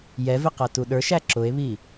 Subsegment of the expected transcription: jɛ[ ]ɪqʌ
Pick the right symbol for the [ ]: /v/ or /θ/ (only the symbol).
v